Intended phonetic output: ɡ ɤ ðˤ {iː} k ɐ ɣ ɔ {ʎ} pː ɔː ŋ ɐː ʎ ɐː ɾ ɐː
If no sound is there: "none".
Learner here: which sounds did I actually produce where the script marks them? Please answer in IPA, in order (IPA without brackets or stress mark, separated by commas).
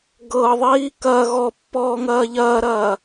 iː, none